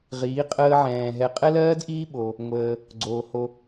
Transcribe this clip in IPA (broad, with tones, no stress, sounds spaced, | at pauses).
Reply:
ʁ iː˨˦ qʼ əː˧ ʕ ɛ̃ː˨ ɦ ɛ˨˦ qʼ ɛ˦ l ɜː˦ d ʔ iː˦ ɓ o˧ | ŋʷ əː˧ | ɡ͡ǀ oː˨ h o˧